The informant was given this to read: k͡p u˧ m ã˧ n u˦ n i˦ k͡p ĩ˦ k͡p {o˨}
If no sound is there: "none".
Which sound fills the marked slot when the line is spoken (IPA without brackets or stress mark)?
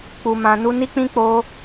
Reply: o˦